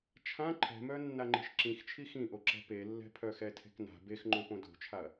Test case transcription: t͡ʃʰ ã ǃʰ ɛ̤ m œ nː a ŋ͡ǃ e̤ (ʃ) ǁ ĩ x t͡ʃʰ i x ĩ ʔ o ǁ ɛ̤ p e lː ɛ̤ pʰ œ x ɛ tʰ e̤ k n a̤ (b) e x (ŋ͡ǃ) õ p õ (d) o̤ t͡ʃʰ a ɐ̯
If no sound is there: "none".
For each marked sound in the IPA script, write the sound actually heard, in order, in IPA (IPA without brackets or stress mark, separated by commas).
ʃ, b, ŋ͡ǃ, d